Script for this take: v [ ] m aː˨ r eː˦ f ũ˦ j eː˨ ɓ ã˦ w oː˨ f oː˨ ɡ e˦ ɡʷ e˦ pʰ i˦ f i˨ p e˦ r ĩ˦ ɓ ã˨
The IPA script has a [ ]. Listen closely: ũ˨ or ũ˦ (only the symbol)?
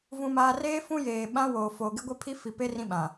ũ˨